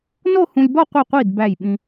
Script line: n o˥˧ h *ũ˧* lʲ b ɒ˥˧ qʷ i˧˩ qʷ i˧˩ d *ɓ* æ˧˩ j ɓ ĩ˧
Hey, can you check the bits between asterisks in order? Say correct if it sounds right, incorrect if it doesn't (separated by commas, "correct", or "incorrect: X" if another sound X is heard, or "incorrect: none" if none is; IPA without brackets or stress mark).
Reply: correct, incorrect: b